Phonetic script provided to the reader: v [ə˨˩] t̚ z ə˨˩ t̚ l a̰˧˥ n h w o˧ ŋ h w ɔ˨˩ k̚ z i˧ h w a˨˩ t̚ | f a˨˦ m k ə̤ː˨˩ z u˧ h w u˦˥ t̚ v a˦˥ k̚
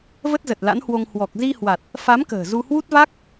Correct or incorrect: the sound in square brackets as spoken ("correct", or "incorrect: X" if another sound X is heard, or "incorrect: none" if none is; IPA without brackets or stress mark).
incorrect: ə˦˥